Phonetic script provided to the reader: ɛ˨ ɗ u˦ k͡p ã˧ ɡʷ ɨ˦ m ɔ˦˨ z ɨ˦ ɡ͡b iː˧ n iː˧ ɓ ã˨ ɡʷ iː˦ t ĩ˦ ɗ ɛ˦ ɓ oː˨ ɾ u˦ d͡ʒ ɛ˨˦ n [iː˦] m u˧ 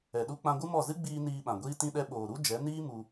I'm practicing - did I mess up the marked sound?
no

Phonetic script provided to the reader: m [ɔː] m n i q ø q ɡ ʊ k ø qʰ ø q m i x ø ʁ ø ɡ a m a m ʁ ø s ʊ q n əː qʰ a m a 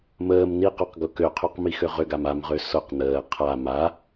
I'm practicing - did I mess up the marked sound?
yes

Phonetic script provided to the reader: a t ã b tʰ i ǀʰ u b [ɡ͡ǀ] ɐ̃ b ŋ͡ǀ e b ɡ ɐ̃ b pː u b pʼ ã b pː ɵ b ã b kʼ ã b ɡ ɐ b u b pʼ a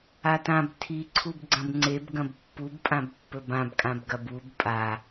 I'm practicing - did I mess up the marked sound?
no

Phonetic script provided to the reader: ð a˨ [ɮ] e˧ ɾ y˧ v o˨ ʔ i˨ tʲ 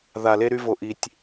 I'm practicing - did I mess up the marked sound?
yes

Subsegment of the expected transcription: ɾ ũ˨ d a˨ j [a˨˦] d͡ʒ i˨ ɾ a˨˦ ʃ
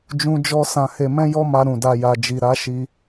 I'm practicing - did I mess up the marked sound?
yes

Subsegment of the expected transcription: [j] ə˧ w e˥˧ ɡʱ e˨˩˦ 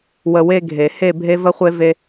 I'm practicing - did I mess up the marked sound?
yes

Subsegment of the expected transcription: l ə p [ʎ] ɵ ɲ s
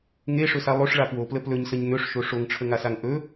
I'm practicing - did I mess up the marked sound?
yes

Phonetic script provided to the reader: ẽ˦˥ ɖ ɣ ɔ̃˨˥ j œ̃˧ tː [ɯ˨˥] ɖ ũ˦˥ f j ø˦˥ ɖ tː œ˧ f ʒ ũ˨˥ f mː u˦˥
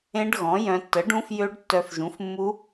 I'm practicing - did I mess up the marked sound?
yes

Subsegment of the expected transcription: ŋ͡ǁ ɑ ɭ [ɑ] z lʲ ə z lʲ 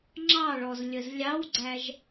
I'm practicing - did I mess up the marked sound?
yes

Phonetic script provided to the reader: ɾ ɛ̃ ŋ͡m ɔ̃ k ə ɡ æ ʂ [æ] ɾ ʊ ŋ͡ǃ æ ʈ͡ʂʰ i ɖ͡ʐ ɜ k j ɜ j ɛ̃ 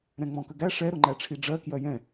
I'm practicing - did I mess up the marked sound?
yes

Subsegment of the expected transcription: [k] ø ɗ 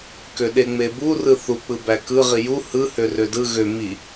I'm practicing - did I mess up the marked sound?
no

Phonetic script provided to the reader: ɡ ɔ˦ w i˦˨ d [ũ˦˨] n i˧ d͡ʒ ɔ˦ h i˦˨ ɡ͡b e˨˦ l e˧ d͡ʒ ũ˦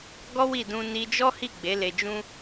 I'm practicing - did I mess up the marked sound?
yes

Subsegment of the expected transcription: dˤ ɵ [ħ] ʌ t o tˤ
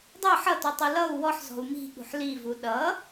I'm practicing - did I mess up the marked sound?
no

